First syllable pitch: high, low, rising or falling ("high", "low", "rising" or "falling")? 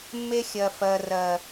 high